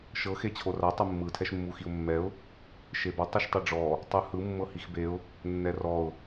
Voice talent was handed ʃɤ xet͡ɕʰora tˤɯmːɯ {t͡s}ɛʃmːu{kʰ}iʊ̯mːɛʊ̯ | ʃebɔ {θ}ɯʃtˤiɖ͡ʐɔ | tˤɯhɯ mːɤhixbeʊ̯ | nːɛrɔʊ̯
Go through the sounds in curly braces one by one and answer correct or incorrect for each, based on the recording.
incorrect: tʰ, incorrect: x, incorrect: tˤ

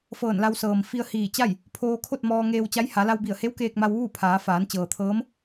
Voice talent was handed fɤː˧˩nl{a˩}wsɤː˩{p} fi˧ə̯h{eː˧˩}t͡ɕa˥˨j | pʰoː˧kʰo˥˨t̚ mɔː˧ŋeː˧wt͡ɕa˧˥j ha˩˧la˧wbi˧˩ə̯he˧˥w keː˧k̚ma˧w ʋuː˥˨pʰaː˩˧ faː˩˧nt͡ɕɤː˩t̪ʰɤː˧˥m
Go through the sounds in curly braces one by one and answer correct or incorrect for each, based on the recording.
incorrect: a˧, incorrect: m, incorrect: iː˧˩

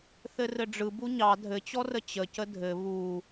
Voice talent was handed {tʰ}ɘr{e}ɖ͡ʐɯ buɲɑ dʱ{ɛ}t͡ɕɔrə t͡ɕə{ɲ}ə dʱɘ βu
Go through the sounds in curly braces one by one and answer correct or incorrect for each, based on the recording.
incorrect: θ, incorrect: ɘ, incorrect: ɘ, incorrect: c

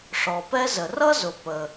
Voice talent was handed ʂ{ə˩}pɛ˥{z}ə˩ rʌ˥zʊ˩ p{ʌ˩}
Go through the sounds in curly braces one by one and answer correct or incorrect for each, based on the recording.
incorrect: ɔ˩, correct, incorrect: ə˩

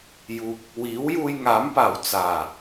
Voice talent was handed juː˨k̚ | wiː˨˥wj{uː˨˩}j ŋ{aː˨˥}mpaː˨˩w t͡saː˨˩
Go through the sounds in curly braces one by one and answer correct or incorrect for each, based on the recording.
incorrect: uː˧, correct

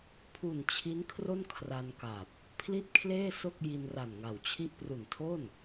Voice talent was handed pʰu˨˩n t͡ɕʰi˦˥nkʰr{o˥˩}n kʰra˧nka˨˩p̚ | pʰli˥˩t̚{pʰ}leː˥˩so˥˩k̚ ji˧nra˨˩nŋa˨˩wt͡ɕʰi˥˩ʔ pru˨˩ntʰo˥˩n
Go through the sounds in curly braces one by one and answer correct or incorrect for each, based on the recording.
correct, incorrect: kʰ

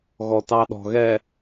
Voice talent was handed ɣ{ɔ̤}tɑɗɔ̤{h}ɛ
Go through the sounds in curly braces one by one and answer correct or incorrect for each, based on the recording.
incorrect: ɔ, incorrect: ɣ

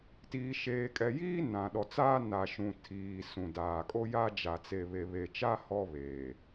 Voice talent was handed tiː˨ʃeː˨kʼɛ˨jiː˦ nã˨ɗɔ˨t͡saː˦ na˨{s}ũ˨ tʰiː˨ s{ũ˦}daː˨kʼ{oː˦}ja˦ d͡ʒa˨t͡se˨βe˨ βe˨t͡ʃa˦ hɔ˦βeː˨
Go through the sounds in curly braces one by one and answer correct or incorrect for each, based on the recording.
incorrect: ʃ, incorrect: ũ˨, incorrect: o˦

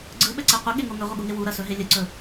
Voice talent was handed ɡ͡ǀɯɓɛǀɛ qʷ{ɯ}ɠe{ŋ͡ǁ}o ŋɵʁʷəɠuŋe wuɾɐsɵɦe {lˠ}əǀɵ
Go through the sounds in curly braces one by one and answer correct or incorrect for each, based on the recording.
incorrect: ə, incorrect: ŋ, incorrect: lʲ

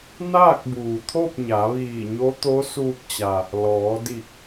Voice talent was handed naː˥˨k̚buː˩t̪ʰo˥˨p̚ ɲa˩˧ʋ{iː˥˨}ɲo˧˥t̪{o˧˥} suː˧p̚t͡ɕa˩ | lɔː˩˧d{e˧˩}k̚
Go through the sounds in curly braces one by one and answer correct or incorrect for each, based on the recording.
incorrect: iː˧˩, correct, incorrect: i˧˩

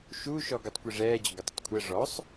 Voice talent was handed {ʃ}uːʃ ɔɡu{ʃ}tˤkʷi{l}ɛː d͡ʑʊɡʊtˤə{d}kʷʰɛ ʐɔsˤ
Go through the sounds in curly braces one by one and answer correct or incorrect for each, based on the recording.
correct, incorrect: none, incorrect: ʐ, incorrect: tˤ

